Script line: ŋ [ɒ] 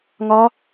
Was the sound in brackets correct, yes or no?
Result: yes